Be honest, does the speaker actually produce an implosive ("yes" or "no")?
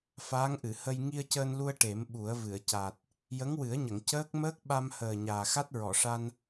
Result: yes